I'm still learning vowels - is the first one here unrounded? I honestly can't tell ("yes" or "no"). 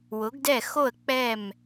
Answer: no